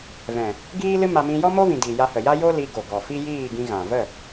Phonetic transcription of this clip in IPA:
v ɛ̃˨ | ɡ iː˦ l ɨ˦ m a˧ m ĩ˧ j ɔ˦ m o˦ v ĩ˨ d i˨ j a˧ h ə˨ j a˦ j o˦ l i˧ ɡ o˨ ɡ ɔ˨ f i˦ j iː˦˨ ɡ ĩ˧ ɣ ã˨ v ə˦˨

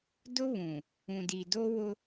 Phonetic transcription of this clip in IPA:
d ʊ˦ β ũ˨ | ũ˨ d i˨ d o˦ w ʊ˦

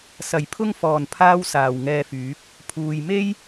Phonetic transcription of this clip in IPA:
s ɐ˨˩ j pʰ ʊ˥ ŋ f ɔː˨˩ n pʰ aː˥ w s aː˨˩ w ŋ ɛː˧ f yː˨˥ p̚ | pʰ uː˨ j m e˥ j

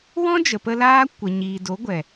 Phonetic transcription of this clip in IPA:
w ɔ̃˦ d͡ʒ ə˨ p ə˧ l aː˦ kʷ ə˨ ɲ iː˨ d o˨˦ ɡʷ ɛ˨

